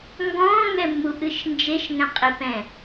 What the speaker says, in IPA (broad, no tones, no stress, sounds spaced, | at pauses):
ŋ ɡ ɔ̃ː ŋ ɛ mː u ʔ ɨ ʃ n d͡ʒ e ʃ ŋ ɛ̃ qʼ i p ɛ̃